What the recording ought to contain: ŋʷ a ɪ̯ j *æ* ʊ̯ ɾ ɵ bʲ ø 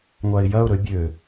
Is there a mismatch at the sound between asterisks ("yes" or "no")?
yes